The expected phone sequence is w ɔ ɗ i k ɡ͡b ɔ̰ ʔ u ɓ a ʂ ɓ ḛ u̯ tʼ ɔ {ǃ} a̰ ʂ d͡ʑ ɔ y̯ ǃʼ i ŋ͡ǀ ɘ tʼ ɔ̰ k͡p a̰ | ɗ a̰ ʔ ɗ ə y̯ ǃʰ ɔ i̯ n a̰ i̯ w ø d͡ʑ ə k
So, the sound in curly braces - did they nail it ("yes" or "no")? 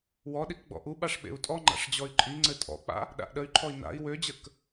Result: no